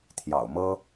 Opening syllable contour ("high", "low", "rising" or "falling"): low